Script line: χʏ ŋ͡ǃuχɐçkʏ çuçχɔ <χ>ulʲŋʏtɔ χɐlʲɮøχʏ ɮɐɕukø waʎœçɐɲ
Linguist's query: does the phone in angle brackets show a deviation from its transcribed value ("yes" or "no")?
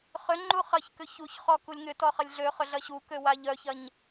yes